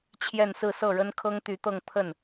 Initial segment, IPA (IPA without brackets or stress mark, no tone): t͡ɕʰ